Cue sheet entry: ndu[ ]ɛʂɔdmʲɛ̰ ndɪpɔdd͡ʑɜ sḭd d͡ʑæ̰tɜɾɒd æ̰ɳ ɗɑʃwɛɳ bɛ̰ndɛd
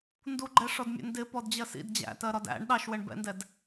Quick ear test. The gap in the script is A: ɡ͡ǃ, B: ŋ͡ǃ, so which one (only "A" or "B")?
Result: A